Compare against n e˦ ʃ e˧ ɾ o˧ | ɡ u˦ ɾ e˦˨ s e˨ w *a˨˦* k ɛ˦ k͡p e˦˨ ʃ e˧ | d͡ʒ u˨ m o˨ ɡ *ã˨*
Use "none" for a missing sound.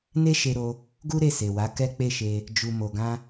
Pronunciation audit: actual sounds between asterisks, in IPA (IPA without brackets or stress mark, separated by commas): a˨˦, ã˧